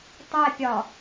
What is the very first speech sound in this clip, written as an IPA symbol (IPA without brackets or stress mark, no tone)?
tˤ